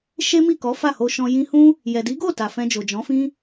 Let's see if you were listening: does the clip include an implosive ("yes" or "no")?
no